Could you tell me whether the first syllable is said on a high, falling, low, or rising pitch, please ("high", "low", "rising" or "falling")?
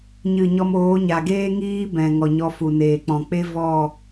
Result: falling